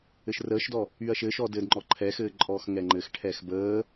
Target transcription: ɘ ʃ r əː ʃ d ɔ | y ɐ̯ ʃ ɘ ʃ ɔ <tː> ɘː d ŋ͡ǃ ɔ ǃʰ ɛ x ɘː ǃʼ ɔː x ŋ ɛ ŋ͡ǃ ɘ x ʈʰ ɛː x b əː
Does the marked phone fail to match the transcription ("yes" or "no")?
yes